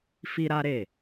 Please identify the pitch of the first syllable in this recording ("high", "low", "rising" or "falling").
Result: high